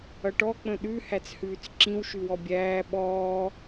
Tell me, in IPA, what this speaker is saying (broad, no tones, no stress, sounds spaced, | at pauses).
ʌ ʈ ɔ k͡p ə̃ ɗ ʉ h æ t͡s h ʉː t͡s ǁ ĩ w ʃ ʉ w ɔ bʲ æː ɓ ɔː